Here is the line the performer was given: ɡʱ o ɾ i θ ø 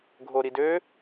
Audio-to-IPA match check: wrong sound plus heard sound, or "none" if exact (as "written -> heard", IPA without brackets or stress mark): θ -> d